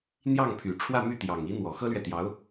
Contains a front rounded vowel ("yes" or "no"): yes